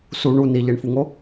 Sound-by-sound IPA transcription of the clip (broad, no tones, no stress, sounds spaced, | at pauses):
s u ɳ u n i ʎ e ɳ f u ŋ o